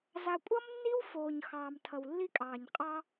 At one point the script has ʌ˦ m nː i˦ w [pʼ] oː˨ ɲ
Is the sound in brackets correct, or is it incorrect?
incorrect